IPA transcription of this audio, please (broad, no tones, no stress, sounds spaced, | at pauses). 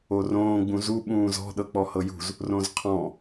o r õː ɡ͡b ũ z u ɓ ũː z ɔ̤ ɗ ɤ k͡p ɔ h ɤ j ṳ z | r õ z qʰ ɔ̃